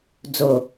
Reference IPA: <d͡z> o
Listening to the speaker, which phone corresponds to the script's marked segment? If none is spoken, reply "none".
d͡z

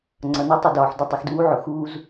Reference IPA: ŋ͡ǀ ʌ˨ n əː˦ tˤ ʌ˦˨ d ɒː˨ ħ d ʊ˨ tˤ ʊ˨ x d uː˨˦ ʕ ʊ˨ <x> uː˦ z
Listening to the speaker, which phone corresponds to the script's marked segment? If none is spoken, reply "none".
x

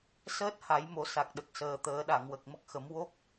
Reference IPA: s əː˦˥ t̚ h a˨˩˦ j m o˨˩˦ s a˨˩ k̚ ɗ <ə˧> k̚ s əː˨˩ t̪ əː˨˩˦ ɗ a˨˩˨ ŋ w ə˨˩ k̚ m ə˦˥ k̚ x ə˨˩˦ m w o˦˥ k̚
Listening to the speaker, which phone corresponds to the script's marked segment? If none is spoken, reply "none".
ə˨˩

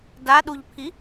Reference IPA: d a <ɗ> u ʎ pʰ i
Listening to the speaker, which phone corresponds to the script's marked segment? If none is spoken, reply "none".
ɗ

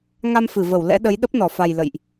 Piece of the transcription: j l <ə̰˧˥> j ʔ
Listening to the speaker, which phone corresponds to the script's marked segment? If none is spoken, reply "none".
ə̰˧˨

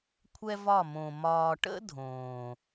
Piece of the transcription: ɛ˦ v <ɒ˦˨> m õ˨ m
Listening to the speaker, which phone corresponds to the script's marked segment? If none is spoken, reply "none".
ɒ˦˨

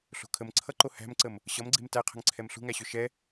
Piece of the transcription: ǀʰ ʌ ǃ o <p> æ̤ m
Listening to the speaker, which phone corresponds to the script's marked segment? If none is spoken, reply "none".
h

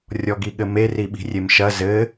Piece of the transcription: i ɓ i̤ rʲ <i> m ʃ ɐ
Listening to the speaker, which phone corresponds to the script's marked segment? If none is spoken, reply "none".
e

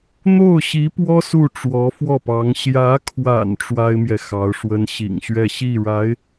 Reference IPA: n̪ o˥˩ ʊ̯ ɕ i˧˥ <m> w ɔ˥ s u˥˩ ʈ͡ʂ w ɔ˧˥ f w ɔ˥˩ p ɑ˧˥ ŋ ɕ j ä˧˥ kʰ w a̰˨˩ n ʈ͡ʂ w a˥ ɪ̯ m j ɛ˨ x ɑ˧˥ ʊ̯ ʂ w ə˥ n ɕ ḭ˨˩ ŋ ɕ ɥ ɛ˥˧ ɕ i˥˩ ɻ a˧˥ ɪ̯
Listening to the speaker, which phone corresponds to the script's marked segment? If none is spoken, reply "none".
p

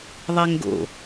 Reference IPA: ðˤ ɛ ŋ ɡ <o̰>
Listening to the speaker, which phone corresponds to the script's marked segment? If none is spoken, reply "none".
o̰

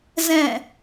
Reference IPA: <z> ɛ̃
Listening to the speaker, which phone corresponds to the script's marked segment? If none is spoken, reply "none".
z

